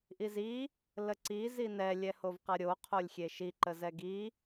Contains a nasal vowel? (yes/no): no